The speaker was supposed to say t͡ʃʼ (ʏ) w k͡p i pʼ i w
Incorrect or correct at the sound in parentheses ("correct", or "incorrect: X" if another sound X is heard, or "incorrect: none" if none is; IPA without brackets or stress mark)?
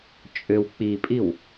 correct